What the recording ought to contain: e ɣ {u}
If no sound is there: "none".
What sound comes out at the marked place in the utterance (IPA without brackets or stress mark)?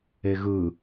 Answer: ɯ